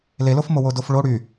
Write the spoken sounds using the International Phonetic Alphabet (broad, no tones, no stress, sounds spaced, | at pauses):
l e l o f m o w o d o f ɭ o ɽ y